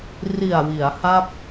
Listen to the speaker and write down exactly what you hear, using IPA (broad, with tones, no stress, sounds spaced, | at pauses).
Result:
r i˨˩ a̯ w i˩˦ a̯ h a˥˩ p̚